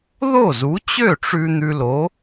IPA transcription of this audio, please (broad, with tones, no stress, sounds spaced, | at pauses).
ð o˥˩ z u˨˥ t͡ɕ ø˥˩ ʈ͡ʂ ʉ˧ n̪ ʉ˧ l o˨˥